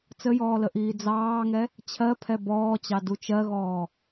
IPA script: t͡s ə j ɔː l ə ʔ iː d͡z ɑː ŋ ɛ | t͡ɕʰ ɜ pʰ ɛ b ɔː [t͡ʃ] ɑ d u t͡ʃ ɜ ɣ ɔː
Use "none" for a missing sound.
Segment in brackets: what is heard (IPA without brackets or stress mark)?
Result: t͡ɕ